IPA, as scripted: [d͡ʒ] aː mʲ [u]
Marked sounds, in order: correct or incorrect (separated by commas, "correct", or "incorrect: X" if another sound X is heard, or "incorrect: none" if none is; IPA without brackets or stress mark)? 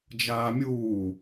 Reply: correct, incorrect: uː